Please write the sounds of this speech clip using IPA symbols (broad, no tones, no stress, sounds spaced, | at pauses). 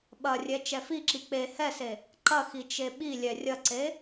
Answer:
ɓ ɐ rʲ ɛ t͡ʃ ɛ f i ǁ i k͡p e h ɛ s e | ǃ ɐ x i t͡ʃ e ɓ i lʲ ɛ rʲ ɐ ǀ e